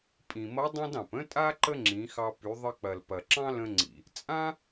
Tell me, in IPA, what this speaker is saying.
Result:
pʼĩ˩mʌ˧˥dˤã˥d ɑ̃˩p ə̃˥tʼa˥ ǃə˥ŋ͡ǁĩ˩˧xɑ˧ py˩˧ðˤə˧k͡pɐ˩lpɐ˩ ǁɑ̃˥lə̃˧ŋ͡ǀḭ˩ | t͡sʼã˥

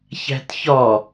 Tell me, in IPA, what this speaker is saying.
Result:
çæ̤tçɒ

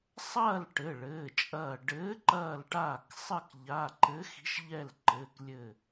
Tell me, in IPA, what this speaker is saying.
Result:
sˤɐː˥˨l ʈɘ˩˧˩ɭɘː˩˧˩t͡ʃʼɐː˧˩ ɖɘː˨˥ǃɐː˧˩lʈaː˧˩k sˤɘ˥˨kʎa˩˧˩ ǃɘ˨˥xi̤˨˥ʃʎɛ˧˩l ǃɘː˩˧˩klʲɘ˧˩

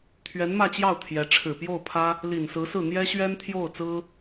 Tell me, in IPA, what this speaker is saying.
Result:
t̪ʰɥɛ˧˥nmä˥˧t͡ɕjɑ˥˩ʊ̯ t̪ʰjɛ˧˥ ʈ͡ʂʰɻ̩˨˩pjo˥˩ʊ̯pʰä˥ | li˨˩nsɹ̩˧˥sɹ̩˥˩ n̪jɛ˥ɕɥɛ˥nt̪ʰjo˥˩ʊ̯t͡sɹ̩˥

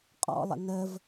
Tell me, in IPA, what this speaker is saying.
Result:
qʼɔ̰lˠə̰ nəv

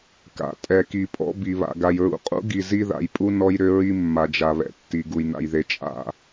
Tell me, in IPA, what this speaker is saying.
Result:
ka̰˨ tʼɛ˨ki˨pʼɔ̰˦ bi˨βa̰˨ ɡa˨jɹṵ˨ qʼṵ˦ ɡi˨zi˦ða̰˨jpʼu˦ nɔ˦jɾʏ˦ɹi˦ mːa˨d͡ʒa˨βɛ̰˨tːi˨ ɡu˨jna̰˨jðe˨ t͡ʃʼa̰˦

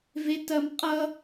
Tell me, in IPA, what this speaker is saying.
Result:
vetɐmqʼʌ

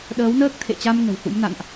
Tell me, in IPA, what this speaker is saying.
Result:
ɗəː˨˦wnəː˦˥k̚t̪ʰḛ˧˨t͡ɕa˧m ŋə̤˨˩whṵ˧˥mna̰˧˨nʔ

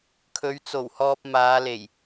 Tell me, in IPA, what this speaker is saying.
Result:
kʰɵ˨˧ɥt͡so˨˩whɔː˧p̚ maː˨˧le˨˩j

